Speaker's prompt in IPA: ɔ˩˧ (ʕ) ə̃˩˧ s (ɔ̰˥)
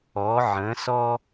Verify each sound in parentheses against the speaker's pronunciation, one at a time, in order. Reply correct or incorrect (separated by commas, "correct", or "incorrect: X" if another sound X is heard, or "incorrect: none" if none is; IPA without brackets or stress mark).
correct, incorrect: ɔ˥